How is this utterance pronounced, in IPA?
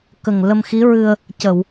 k ə˨˩ ŋ l ə˧ m x i˧˥ ɹ ɨ˧ ə̯ | c ə˨˩˨ w

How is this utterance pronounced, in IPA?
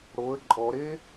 ɽ o ə̯ ǃʼ ɔ ɾ e

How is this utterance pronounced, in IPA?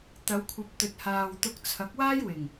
t̪ ɐ˨˧ w kʷʰ ɐ˨˥ p̚ t̪ ɵ˨˥ t̚ h aː˨ w t̪ ʊ˧ k̚ t͡sʰ ɐ˨˥ k̚ w aː˥ j w ɪ˨˩ ŋ

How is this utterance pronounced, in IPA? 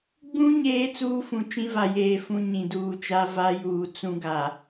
ɡ͡b ũ˦ ɲ eː˦ t͡s uː˦ f ũ˨ t͡ʃ ĩ˦ v a˨ j eː˨ f ũ˦ ɲ ĩ˨ d uː˨ t͡ʃ a˦ v a˦ j uː˨ t͡s ũ˦ ɡ a˨

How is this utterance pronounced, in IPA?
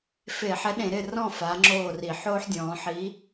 f e˧˩˧ ħ ɛ˨˥ ɗ ẽ˧˩˧ ɾ ɪ˥˩ r ɔ̃˥˩ f a˨˥ ŋ͡ǁ oː˥˩ r i˧˩˧ ħ oː˦ ħ dʲ ɔ̃ː˩˧ ħ i˨˥

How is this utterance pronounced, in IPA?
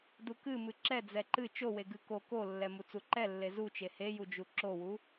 d u k ɨ m ɨ ǁ ɛ d͡z ɛ ǃ ɨ t͡ʃ o w e ɡ ɨ k o k o lː ɛ m u t͡s u ǃ ɛ lː e z u t͡ʃ e h e j u d͡ʒ u ǁ o w u

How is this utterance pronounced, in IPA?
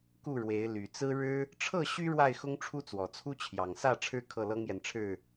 k u˥˨ ɻ w e˨˦ ɪ̯ l y˨˩ t͡s ɹ̩˦ ɻ ɻ̩˦ | ʈ͡ʂʰ ɤ˥˨ ɕ y˦ ɻ w a˥˨ ɪ̯ x ʊ˦ ŋ ʈ͡ʂʰ u˦ t͡s w ɔ˨˩ t͡sʰ u˦ t͡ɕʰ j ɑ˨˩ ŋ s ä˥˨ ʈ͡ʂʰ ɻ̩˦ kʰ ɤ˥˨ l ɤ˦ ŋ j ɛ˨ n ʈ͡ʂʰ ɻ̩˥˨

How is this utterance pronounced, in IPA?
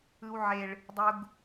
ɯ˦ w ʕ e˦ ɭ | dˤ u˦ ɡ

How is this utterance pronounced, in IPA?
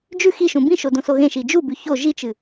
d͡ʒ ʉ x i ʃ ũ b ĩ ʃ o d õ s o ɣ ẽ ʃ i d͡ʒ u b ʉ ç o ʒ i t͡ʃ ɨ

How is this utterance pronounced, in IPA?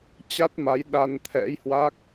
t͡ɕ a˦˥ t̚ m a˨˦ j ɗ a˧ n t̪ʰ ɛ̰˧˥ j h w a˦˥ k̚

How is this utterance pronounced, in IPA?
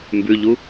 m b ʉ ʎ u

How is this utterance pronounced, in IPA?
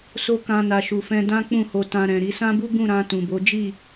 s o˦ k ã˧ n a˨ ʃ u˨ f ɛ̃˧ d ã˦ k͡p ũ˦˨ h o˧ t ã˧ ɾ ɛ̃˨ ɾ i˧ s ã˦ b u˦ ɡ ũ˦˨ ɾ ã˧ t ũ˨ b o˨˦ d͡ʒ i˦˨

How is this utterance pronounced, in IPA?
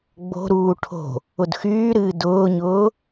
ɡ͡b o̤ ɾ uː ʈʰ o̤ | ʊ d x yː ɾ ɨː d ʊː ɲ ʊː

